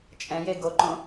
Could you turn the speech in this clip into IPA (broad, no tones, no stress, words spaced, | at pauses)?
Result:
t͡ʃʼɛ̃je ɡoǃõ